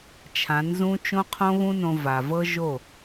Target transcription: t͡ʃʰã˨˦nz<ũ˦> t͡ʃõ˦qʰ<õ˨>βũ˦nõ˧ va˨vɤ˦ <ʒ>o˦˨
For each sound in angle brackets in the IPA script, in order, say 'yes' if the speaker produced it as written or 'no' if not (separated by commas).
yes, no, yes